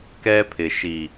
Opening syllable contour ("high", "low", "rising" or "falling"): high